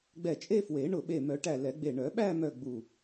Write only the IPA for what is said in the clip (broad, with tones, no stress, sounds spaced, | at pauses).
ɡ͡b ɛ˧˩ t͡ʃʼ e˥˧ f w e˨˩˦ ɳ ʊ˧˩ ɓ e˧˩ m œ˨˩˦ ʈ æ˧˩ l ɛ˨˩˦ ɡ͡b e˧˩ ɳ œ˨˩˦ ɓ æ˥˧ m œ˧˩ ɡ͡b u˧˩